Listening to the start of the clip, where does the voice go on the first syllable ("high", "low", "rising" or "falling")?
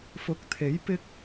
rising